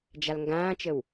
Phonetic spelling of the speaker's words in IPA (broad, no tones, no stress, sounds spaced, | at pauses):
d͡ʒ a l ŋ ɡ ãː t͡ʃ ə w